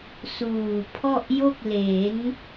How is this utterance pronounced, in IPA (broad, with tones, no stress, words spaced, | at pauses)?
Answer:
suː˨˩pʰɔ˥˩ʔjo˥˩k̚ le˩˦n